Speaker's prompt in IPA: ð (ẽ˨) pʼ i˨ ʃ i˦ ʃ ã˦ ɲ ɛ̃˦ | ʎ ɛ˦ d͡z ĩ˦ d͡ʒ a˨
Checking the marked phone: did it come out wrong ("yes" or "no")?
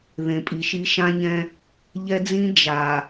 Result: no